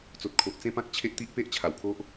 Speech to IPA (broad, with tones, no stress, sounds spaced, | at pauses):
t͡s o˨ t̚ kʰ o˨ ʔ t͡s ẽ˦ p ã˦ k̚ t͡ɕʰ e˦ ʔ t̪ i˦ ʔ p e˦ ʔ t͡ɕʰ a˨˩ w kʰ o˦ ʔ